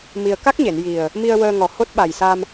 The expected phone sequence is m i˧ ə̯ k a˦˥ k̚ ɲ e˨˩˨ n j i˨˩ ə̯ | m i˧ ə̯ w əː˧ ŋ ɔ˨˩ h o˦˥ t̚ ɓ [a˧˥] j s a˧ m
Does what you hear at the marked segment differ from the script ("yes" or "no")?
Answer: yes